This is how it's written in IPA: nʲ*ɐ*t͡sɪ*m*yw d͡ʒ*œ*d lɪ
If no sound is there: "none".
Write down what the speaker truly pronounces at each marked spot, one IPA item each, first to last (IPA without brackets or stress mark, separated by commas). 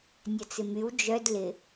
ɐ, m, œ